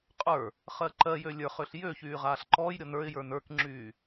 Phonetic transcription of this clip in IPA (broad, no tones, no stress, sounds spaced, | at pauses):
qʼ ə˞ | χ ɜ ǃ ɜ j ø lʲ ə˞ χ ø ɬ j ø ç yː ʁ aː ɬ ǃ ɔː j ɾʲ ɔ n ə˞ ɪ̯ j ə˞ n ə˞ k ŋ͡ǁ yː